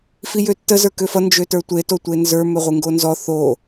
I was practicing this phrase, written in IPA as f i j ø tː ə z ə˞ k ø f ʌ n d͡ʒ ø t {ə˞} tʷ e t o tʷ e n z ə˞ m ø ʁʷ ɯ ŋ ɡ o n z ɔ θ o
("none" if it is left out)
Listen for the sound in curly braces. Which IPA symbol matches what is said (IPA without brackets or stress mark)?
ə˞